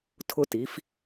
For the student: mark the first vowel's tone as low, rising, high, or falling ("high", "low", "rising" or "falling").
high